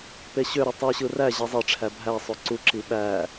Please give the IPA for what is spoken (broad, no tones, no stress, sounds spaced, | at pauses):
p e ɕ ø ɾ ø tˤ y ɕ ɯ r æ ʑ e zˤ e ʈ͡ʂʰ æ bʱ æ sˤ ø ǀ u ǁ i ɓ æ